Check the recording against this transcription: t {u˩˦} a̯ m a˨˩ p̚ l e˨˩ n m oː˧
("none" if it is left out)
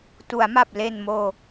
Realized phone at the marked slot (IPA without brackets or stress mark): u˩˦